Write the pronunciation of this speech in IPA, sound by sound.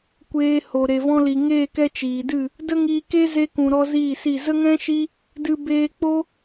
kʷeː˧ ho˨ɾe˨vɔ̃˧li˨ ŋeː˦˨kɛ˦t͡ʃiː˨dɨ˦˨ | də˦ŋiː˧ke˦ ze˧kũ˨ ɾɔ˦ziː˦˨si˦˨ zə˦ŋɛ̃˦ʃi˦ | dɨ˧ beː˧k͡po˦

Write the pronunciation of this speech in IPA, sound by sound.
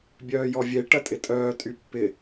bʲœːjɔvʲe ʈɐtʼɪtʼœː tʼypːɪ

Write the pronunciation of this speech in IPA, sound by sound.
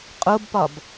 qʼobpɒb

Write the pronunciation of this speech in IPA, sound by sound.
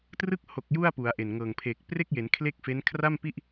trɯ˦˥k̚ho˨˩k̚ ju˥˩a̯pu˩˦a̯ʔe˨˩nŋɤː˨˩ŋ pʰe˨˩k̚pre˥˩k̚je˩˦n kʰle˥˩k̚fe˦˥n kʰra˥˩mpi˥˩ʔ

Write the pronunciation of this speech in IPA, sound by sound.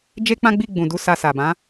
d͡ʒe˦k͡pã˦ɡ͡bi˦˨ ɡ͡bũ˨du˨˦ sa˧sa˨ bã˨˦

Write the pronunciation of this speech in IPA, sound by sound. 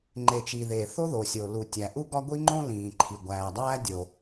ŋ͡ǃe˩t͡ʃi˩ ðe˩θo˦ðo˩sʲo˩ lu˩ tʲæ˩ʔu˦ɡɒ˦ ɡʷi˦ŋ͡ǃõ˦ lĩː˩ǃʰi˩ɡʷæː˩ dˤæː˦ dʲo˩

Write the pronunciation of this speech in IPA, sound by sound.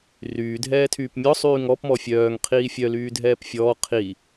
ryː dʱɛːtʰyːpmʲɔ sˤyːŋɔp mɔfʲœːŋ qʰiːfʲœ lyːdʱɛːpfʲɔː qʰi

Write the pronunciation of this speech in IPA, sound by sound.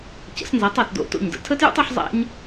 cə̰˩˥snzæ˩˥tˤo˩tdo̰˥˩ to̰˥˩ɲdə̰˧ tʰə˥tjṵ˥tˤ u˥ħzˤæ̰˥ɲ

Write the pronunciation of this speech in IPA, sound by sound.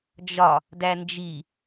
d͡ʒɒ | dænd͡ʒi

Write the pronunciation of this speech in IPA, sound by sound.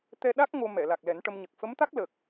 t̪ɛ˧ɗa˦˥k̚ ŋo˧ mɛ˨˩˨ la˨˩k̚lɛ˨˩˦nʈə˧mɲə˨˩k̚ fə˧˥mt̪a˦˥k̚lə˨˩k̚

